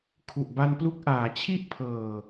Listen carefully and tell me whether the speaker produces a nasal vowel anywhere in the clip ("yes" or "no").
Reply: no